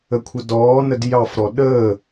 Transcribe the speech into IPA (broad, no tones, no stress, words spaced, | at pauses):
əkʷʰədɔːnəd jɑfɾɔ ɗəː